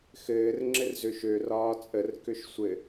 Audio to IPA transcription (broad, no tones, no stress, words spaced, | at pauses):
xɘːr ŋ͡ǁɘrzøʃø rɒːt͡sʼər køʃsʷɘ